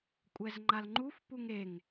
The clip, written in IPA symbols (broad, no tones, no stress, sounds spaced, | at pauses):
kʷʼ ɛ z ŋ͡ǃ a l ŋ͡ǃ u f p u ŋ e ŋ